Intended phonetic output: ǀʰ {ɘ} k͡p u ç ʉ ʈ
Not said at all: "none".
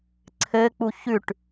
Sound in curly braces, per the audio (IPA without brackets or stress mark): ɘ